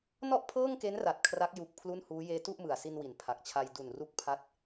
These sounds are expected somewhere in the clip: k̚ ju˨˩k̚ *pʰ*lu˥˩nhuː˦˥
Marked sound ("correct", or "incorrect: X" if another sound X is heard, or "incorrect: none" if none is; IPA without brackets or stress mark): correct